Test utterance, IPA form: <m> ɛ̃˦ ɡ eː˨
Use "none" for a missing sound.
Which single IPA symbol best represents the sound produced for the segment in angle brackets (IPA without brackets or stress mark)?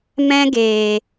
m